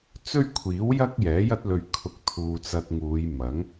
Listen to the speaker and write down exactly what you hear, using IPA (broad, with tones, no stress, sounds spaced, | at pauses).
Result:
t͡s ɵ˥ ɥ kʷʰ iː˨˥ w j ɐ˥ k̚ j ɛː˨˥ j ɐ˥ t̚ l ɵ˧ ɥ kʰ ʊ˧ k̚ t̪ʰ uː˧ t͡s ɐ˧ t̚ ŋ uː˨˧ j m ɐ˨˥ ŋ